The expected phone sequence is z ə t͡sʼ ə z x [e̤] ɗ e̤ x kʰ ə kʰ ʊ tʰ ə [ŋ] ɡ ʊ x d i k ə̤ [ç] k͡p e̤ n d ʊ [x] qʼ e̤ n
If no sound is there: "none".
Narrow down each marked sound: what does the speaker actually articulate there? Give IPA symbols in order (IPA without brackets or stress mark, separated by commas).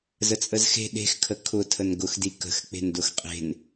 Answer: e̤, n, x, x